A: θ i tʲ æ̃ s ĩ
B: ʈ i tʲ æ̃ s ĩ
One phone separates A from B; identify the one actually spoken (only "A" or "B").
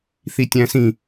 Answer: A